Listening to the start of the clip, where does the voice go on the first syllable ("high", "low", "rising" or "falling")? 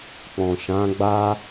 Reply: low